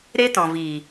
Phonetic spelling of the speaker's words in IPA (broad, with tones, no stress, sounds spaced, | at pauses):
ɾ e˦ t ɔ̃˨ v i˨